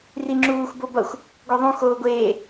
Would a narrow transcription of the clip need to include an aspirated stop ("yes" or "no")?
no